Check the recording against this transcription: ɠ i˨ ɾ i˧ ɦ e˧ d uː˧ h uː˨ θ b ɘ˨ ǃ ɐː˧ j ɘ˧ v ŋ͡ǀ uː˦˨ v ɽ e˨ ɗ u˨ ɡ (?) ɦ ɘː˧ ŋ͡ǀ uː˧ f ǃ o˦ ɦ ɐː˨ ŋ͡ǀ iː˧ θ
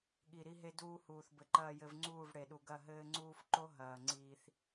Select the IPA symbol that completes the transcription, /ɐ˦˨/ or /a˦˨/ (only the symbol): ɐ˦˨